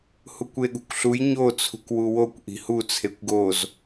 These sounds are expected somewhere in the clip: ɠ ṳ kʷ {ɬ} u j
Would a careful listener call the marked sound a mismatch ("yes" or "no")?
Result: no